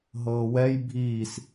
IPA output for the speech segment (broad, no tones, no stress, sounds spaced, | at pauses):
ɦ ɤː w ɛ j bʱ iː s